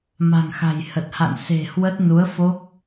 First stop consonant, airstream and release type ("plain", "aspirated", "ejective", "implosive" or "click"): plain